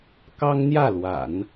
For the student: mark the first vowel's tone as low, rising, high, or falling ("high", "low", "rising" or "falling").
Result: high